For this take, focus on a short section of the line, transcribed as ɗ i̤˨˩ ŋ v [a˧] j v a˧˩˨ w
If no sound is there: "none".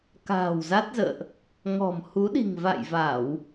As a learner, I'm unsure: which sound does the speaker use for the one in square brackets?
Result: a̰˧˨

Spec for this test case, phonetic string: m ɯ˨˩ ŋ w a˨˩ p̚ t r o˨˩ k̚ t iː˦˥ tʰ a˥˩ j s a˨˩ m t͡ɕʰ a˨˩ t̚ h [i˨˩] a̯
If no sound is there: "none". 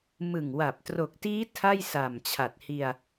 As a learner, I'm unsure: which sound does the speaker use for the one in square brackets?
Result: i˧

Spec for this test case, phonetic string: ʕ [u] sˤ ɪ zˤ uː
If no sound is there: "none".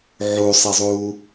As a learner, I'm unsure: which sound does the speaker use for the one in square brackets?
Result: u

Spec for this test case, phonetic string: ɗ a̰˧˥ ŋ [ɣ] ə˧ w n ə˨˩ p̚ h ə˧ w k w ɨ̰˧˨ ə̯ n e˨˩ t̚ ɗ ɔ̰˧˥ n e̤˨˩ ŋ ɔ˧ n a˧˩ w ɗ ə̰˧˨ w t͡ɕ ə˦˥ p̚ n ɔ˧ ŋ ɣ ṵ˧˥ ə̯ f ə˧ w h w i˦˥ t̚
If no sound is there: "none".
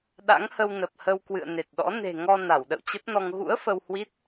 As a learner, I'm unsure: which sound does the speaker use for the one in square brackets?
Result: h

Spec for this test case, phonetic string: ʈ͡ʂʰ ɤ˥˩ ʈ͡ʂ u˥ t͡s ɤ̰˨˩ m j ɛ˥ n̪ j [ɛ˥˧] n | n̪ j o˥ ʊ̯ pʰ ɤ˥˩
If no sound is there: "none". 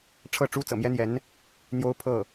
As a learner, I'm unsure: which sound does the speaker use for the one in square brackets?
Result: ɛ˧˥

